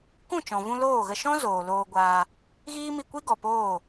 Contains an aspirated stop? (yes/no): no